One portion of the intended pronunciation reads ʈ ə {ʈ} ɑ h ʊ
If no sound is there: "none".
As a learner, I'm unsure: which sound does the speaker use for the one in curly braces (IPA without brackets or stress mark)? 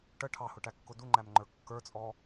ʈʰ